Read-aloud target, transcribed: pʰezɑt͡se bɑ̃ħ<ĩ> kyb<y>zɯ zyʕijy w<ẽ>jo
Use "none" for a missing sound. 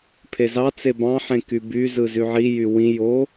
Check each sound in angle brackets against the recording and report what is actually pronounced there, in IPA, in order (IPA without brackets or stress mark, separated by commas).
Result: ẽ, y, ĩ